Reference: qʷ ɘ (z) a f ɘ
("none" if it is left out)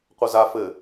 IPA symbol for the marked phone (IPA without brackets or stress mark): z